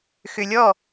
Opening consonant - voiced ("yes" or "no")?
no